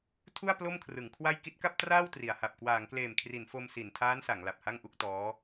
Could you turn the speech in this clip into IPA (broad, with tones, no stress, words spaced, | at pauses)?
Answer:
tʰu˥˩a̯ plo˥˩mkʰrɯ˩˦ŋkʰwa˥˩j ki˦˥t̚ka˥˩p̚traː˥˩w tri˩˦a̯ha˨˩p̚ kwaː˩˦ŋkleː˨˩mkʰri˩˦n fo˧msi˩˦n tʰaː˦˥nsa˩˦ŋ la˨˩p̚ha˥˩ŋʔu˦˥k̚tɔː˦˥